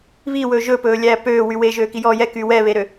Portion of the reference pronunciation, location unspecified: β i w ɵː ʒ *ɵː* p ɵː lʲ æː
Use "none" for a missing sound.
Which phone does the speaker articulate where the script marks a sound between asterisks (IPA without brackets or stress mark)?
ɵ